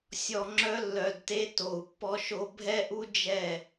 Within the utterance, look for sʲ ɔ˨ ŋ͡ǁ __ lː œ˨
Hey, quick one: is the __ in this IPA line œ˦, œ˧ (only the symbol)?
œ˧